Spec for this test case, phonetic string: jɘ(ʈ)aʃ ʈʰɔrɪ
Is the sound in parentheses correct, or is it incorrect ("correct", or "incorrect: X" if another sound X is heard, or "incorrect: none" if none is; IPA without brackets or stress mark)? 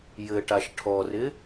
correct